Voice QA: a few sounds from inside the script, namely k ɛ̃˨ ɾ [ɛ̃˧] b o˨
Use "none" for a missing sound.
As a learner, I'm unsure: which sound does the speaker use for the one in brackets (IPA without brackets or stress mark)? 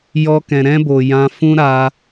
ɛ̃˦